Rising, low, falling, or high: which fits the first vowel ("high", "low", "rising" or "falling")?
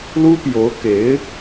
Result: high